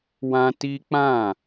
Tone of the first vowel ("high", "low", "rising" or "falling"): high